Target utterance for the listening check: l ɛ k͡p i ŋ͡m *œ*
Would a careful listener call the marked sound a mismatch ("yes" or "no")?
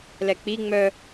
no